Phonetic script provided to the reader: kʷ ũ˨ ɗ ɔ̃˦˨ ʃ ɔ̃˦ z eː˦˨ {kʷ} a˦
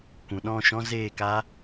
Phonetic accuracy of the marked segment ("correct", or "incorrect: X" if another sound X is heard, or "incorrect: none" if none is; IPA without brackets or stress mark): incorrect: k